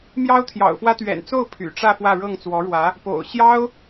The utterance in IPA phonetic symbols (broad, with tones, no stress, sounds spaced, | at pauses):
m j ɑ˥ ʊ̯ t̪ʰ j ɑ̰˨˩ ʊ̯ f w ä˥ t̪ ɥ ɛ̰˨˩ n t͡s o˥˩ ʊ̯ pʰ y̰˨˩ ʈ͡ʂ ä˥˧ f w ä˥˧ ɻ ɤ˥˩ ŋ t͡s w ɔ˧˥ ɻ w ä˧˥ | p o̰˨˩ ʊ̯ ɕ j ɑ˥ ʊ̯